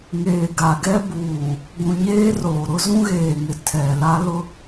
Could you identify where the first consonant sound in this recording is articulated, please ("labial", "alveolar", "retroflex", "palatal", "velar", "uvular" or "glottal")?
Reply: velar